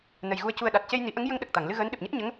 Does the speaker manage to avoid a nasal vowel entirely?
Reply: yes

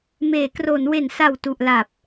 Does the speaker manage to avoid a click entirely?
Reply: yes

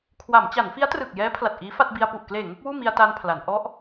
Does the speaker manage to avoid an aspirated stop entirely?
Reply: no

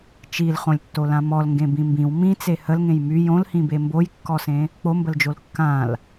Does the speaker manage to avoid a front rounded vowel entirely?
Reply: no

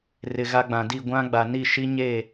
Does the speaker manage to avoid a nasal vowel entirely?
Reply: no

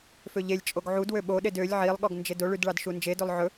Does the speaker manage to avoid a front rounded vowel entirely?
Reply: no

